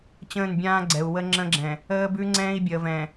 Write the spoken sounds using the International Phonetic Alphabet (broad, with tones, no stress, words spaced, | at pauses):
t͡ɕə̃ː˦˨nbʲãː˦ɡ͡ǀɛ˨u̯ wə˦ŋ͡ǁə̃˦ɡ͡ǁɛ̃˨ | əː˦bʉ˦ ŋ͡ǀɛ̃ː˦i̯bʲəː˨vɛ̃˨